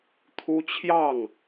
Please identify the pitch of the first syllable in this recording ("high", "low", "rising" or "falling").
high